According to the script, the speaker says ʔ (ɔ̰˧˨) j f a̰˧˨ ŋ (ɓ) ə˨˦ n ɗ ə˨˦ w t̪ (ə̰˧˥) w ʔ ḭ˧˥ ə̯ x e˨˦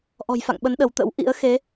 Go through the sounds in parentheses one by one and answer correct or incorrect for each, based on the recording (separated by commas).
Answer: incorrect, correct, correct